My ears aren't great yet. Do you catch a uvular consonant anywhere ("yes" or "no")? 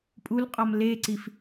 yes